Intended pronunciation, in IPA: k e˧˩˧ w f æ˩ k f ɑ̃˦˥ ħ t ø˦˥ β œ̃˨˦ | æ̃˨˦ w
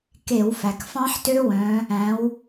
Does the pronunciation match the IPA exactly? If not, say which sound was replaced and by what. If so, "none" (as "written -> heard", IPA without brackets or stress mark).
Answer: β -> w